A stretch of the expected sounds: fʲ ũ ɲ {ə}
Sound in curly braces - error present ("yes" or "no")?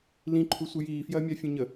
no